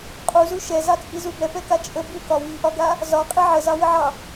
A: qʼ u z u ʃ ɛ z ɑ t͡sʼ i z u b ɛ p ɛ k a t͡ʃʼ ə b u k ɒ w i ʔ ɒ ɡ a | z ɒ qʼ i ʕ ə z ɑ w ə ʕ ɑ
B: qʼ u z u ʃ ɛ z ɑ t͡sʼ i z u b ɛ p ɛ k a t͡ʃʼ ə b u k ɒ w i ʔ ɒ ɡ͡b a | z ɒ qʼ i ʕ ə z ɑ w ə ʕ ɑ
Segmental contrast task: A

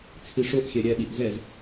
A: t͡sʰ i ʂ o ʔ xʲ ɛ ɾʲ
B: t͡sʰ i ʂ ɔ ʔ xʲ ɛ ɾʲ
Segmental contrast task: A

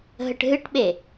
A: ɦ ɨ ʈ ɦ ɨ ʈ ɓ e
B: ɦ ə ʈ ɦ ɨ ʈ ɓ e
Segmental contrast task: B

